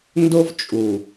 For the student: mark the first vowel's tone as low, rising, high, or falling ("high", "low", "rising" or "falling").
high